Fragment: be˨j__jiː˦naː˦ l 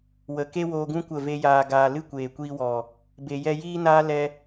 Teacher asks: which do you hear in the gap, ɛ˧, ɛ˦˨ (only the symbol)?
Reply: ɛ˧